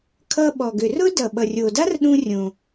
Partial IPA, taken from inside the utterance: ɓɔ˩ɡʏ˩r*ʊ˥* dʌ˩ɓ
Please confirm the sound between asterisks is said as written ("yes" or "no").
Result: yes